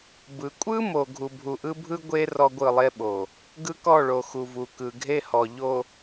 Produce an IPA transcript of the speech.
b ɯ˨ kʷʼ ɯ˦ m o˨ ɡʱ u˨ bʱ u˨ ʔ ɯ˦ bʱ ɯ˦ ɡʷ e˦ r ɔ˦ ɡʷ ɯ˦˨ lˠ e˦ ɓ o˨ | ɡ ɯ˦ k ɔ˦˨ ɭ o˨ x u˨ v u˨ k ɯ˨ ɡʱ e˦ h ɔ˨ ʎ o˨

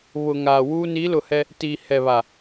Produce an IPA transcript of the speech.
β ʊ˨ ŋ aː˨ w uː˦ n i˨˦ l ʊ˨ h ɛ˦ | t iː˨ h ɛ˨ β a˨

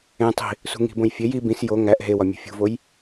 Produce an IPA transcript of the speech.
ẽ tˤ i̤ | s ṳ ŋ i̤ b õ j fʲ e j i b ĩ s j o ŋ æ ʔ ɦ e w ɒ mʲ ṳ fʲ ṳ v o j

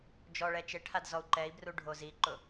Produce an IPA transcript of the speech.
d͡ʒ ɔ ɭ ɛ t͡ʃ e ʈʰ a d z ɔ u̯ ǃ ɛ i̯ b r u ɖʱ o z i ǃ ʊ

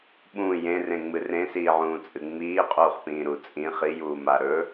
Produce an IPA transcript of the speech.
ɓ ũ j ẽ r ẽ ŋ͡m ɨ r ẽ s iː ʕ ũː t͡sʼ ɨ ŋ͡m iː qʼ uː χ p ĩː ɾ u t͡sʼ ĩ χ i j uː m a ɾ ɵ

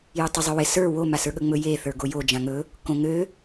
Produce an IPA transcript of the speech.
j ɵ tˤ ɪ zˤ ɵ w ɪ s ə˞ w o m a s ə˞ ɠ ɵ ŋ͡m ɵ j e θ ə˞ ɡ o j o d͡ʒ ã ŋ ɵ | k õ ŋ ø

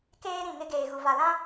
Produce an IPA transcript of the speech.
k eː˦ ɾ ĩ˨ ŋ ɪ˦ ɡ eː˨ ɣ u˨ v a˨ l ã˦

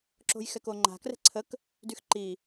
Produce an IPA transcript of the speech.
ǁ o̤ j x ɛ k o ŋ͡ǃ a̤ k r ɛ̤ ǀʰ ə k | d y x ǃ i

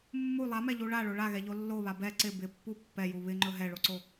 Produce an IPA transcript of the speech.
mː u lˠ a m ɛ ʎ u ɭ a ɭ o ɭ a ɣ ɛ ʎ o lː o β a b ɛ ǀ ɪ b ɪ pː u pː ɛ j u β ɪ ŋ͡ǃ ɵ ɦ ɛ ɭ o ǀ o

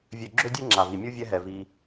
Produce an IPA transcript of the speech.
vʲ ø˨ ɡ͡ǁ ø˧ dʲ e˧ ŋ͡ǁ a˨ v i˨ mʲ u˦ vʲ ɛ˦ ɦ ɛ˨ v i˧

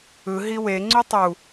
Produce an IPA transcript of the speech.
ɯ ɦ i w e ŋ͡ǀ u tˤ u

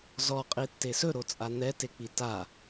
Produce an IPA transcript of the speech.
z ɔ qʼ i tː e s ɵ ɾ o t͡sʼ a n̪ ɛ t e k͡p i t a

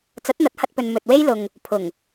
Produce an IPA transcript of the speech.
t͡s ɐ˨˥ t̚ n̪ ɐ˨˥ t̚ h ɐ˧ t̚ p ɵ˨ n m ɵ˨ t̚ w e˥ j l ʊ˨ ŋ | pʰ ʊ˨˩ ŋ

